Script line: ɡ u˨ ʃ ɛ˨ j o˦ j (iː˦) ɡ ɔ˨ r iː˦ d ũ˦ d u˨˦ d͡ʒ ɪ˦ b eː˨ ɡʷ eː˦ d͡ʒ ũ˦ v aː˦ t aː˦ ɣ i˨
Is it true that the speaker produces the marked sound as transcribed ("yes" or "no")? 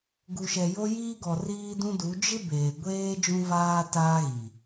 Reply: yes